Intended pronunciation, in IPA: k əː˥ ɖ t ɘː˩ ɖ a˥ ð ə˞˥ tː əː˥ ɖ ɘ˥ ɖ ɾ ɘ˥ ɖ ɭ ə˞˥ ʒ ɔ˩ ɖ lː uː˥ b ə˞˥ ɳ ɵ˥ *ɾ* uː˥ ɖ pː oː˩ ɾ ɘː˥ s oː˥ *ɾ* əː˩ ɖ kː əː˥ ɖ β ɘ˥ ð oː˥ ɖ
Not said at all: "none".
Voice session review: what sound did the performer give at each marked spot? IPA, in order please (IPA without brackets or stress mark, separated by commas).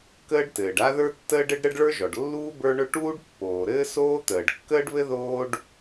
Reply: ʈ, t̪